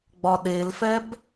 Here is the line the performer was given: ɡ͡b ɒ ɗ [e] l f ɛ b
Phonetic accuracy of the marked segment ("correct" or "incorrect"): correct